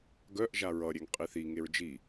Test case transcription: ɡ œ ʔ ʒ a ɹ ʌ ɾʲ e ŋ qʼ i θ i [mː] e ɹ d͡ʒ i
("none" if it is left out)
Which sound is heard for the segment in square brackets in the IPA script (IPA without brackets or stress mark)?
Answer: ŋ